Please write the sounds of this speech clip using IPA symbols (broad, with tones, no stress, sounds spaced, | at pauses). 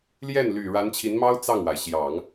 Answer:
l j ɛ˥˩ n l y˨˩ ɻ a˧˥ n t͡ɕʰ i˧˥ n m ɑ˥ ʊ̯ t͡s ɑ˥˩ ŋ w a˩ ɪ̯ ɕ j ɑ˨˩˦ ŋ